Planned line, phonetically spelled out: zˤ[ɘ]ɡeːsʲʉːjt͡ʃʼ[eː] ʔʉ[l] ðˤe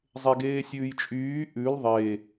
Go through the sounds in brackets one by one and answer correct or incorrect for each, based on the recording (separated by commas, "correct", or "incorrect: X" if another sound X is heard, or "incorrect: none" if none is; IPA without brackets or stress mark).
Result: incorrect: e, incorrect: yː, correct